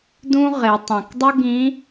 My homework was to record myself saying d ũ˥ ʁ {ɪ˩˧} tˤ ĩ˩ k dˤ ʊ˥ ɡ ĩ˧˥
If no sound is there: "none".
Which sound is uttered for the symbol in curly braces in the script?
ɪ˩˧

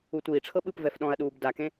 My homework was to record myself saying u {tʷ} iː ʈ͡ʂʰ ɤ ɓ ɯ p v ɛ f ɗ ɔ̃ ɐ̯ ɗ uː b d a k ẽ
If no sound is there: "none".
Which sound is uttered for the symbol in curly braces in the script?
tʷ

